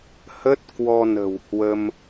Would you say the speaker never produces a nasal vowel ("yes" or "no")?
yes